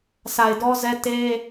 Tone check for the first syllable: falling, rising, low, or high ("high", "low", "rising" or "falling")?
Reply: low